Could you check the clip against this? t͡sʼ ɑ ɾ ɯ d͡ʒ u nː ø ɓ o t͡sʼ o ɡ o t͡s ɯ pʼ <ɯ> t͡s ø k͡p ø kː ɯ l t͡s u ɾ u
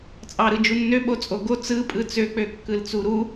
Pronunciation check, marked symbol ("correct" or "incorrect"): correct